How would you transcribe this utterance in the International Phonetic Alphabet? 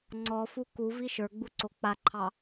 ŋ͡ǀ ɔ f u k u v i ʃ ə˞ ɡ͡b u ǀ o k͡p a ǃʰ ɑ

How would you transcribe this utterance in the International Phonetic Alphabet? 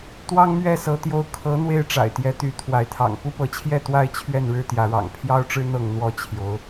t̪ w ɑ˦ ŋ m ɥ ɛ˥˨ s ɤ˨˦ t̪ j o˨˦ ʊ̯ kʰ ɤ˨˦ n̪ w e˦ ɪ̯ ʈ͡ʂ a̰˨˩ ɪ̯ t̪ j ɛ˨˦ t̪ y˨˦ t̪ʰ w a˨˦ ɪ̯ t̪ʰ ɑ̰˨˩ ŋ p u˦ p ɤ˨˦ t͡ɕʰ j ɛ˥˨ t̪ w a˥˨ ɪ̯ t͡ɕʰ ɥ ɛ˥˨ n ɻ ɻ̩˦ t̪ j ä˨˦ ɻ ɑ̰˨˩ ŋ pʰ j ɑ˦ ʊ̯ ʈ͡ʂ ɻ̩˦ n̪ ɤ˥˨ ŋ n̪ w ɔ˥˨ t͡ɕʰ j o˨˦ ʊ̯

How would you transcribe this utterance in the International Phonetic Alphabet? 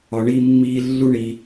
ɒ˦ ɳ i˥ mː iː˥ lː u˥ ɳ i˦

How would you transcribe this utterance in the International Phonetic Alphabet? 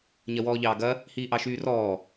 ɲ ɐ w ɔː ʎ ɑː ɡ ɐ | h iː ʔ ɑ ʃ yː r ɔː

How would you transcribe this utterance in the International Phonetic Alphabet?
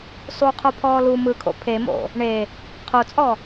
sˤ u qʰ o pʰ ɔː l u m ɯ kʰ o̰ pʰ e m o̰ | ɳ e | qʰ o t͡sʼ ɔ

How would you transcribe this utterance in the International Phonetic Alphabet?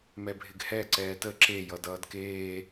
m ɛ bʱ ɪ ɡ h ɛ ǀ ɛː t ə ǁ e j ʌ d ʌː d k eː

